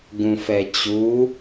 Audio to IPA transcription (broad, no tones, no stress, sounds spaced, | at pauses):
ɡ ũ f ɛ t͡ɕ u